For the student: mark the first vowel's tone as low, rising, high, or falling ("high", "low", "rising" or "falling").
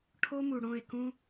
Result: high